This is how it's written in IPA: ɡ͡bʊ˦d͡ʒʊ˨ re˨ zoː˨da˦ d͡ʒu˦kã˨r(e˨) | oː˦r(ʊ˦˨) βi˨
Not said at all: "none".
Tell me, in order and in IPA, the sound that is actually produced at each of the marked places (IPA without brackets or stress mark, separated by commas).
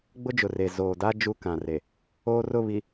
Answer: e˨, ʊ˦˨